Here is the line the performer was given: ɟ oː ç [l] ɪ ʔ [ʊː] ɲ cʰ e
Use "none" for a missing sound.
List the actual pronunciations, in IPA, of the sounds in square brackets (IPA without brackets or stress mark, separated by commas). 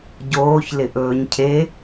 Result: l, ɵː